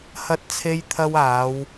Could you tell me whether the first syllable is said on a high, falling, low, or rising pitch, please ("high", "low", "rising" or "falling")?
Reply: high